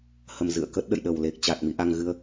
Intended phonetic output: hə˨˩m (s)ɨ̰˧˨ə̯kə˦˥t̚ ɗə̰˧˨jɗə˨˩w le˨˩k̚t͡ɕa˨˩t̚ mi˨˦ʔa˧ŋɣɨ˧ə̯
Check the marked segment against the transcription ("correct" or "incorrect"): incorrect